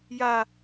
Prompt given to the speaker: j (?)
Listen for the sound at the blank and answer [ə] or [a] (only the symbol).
a